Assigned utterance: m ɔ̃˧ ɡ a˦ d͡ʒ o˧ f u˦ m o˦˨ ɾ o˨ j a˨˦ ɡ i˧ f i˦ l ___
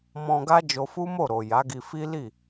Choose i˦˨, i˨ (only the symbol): i˦˨